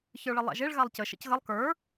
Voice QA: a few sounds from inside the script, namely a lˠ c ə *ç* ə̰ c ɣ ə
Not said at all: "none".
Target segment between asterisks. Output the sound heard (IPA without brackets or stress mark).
ʃ